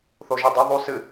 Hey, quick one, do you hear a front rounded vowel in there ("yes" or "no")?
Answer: no